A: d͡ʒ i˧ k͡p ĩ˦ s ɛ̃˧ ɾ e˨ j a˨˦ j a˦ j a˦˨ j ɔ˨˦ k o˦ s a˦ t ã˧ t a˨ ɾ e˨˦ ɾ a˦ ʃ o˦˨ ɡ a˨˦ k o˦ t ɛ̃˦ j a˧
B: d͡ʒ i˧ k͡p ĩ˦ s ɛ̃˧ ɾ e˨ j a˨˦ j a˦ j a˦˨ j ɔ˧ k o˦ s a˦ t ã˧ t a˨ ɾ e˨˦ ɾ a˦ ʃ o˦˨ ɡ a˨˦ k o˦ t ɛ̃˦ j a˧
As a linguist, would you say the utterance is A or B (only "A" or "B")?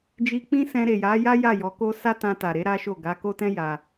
A